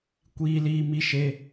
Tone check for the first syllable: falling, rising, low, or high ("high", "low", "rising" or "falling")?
high